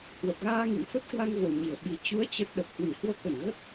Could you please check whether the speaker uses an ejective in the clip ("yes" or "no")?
no